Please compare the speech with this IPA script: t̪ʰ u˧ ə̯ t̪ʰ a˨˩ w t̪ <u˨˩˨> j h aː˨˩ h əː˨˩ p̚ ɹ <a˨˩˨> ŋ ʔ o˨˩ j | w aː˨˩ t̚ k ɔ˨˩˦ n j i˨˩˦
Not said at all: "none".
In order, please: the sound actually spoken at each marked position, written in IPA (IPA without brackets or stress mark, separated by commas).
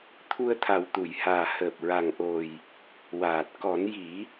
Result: u˨˩˨, a˨˩